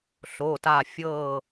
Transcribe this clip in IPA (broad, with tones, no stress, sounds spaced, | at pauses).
ɬ o˩˧˩ t a˧˩ fʲ ɤ˥˨